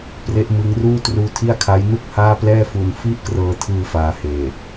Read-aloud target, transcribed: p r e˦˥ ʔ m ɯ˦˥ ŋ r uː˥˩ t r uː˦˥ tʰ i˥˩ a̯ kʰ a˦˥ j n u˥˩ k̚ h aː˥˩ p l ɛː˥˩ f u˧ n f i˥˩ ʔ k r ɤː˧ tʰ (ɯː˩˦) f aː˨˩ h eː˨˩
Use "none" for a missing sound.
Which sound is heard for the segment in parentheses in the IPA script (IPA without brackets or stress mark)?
ɯː˧